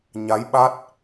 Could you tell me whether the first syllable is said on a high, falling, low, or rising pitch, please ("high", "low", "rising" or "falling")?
rising